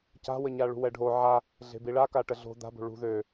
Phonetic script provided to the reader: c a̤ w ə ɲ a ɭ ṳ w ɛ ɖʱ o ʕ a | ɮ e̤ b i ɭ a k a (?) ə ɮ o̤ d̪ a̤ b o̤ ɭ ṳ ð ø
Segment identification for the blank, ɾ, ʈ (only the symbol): ʈ